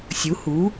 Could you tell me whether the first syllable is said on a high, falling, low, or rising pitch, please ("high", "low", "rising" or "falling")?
rising